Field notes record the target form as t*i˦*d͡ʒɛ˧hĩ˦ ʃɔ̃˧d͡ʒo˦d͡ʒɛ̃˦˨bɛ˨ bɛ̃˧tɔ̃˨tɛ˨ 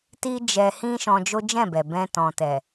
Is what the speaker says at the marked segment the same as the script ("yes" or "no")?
yes